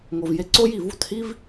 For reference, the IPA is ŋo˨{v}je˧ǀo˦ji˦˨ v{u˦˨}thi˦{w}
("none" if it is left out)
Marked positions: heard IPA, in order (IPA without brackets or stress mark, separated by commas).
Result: v, u˦˨, v